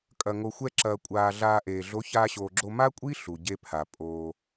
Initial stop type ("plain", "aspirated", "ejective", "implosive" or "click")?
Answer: ejective